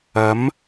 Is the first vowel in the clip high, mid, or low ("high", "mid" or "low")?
low